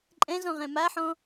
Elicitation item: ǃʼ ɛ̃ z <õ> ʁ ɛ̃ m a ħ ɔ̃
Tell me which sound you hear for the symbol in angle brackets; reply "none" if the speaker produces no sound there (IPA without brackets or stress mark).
ɔ̃